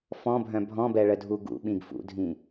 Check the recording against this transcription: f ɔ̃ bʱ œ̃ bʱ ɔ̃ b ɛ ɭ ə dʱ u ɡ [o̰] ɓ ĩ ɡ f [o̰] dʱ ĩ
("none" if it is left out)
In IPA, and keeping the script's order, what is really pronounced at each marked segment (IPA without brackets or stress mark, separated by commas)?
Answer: ṵ, ṵ